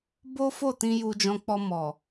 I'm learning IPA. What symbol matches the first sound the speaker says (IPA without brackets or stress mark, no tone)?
b